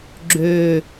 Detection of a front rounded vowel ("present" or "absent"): present